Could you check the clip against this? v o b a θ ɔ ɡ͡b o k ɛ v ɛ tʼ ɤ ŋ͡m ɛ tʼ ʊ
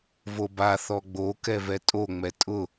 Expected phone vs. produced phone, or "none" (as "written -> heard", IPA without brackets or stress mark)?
ɤ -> o